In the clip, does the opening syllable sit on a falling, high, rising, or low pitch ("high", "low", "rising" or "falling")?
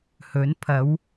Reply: rising